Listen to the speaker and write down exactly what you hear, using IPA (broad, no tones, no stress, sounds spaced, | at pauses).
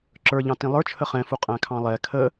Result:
ǁ ə˞ ʎ ɑ̃ t ĩ lˠ ə˞ t͡ʃʰ ə χ ɛ̃ f u qʼ æ̃ kʰ ɑ̃ lˠ ɛ kʰ ə